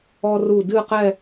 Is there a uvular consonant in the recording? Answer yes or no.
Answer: yes